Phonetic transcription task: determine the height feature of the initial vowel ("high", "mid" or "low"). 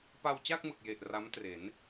low